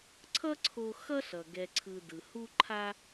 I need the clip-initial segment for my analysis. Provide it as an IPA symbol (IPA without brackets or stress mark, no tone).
ǀʰ